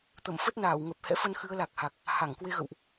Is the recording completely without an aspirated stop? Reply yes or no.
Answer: yes